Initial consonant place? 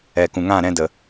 velar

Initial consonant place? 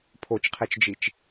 labial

